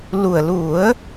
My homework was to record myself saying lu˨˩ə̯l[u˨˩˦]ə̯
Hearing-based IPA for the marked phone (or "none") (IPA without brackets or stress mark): u˨˩˦